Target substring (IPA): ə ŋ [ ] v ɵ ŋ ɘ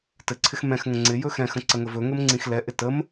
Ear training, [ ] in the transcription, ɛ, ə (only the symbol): ə